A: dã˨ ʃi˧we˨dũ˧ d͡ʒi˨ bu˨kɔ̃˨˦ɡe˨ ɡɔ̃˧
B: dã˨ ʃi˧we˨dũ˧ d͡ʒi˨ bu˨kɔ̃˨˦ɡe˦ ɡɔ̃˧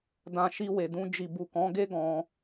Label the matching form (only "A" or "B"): B